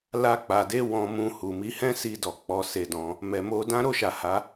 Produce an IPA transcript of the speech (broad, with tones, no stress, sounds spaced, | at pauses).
l a˧ k͡p a˨ d e˨˦ w ɔ̃˧ m ũ˧ h u˨ m i˨˦ h ɛ̃˦ s i˧ d ɔ˨ k͡p ɔ˨ s e˧ d ɔ̃˧ | m ɛ˨ m o˧ d ã˦ ɾ o˦˨ ʃ a˨ h a˨˦